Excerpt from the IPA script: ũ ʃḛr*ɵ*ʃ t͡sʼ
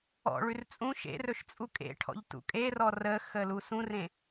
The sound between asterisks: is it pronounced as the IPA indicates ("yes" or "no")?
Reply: yes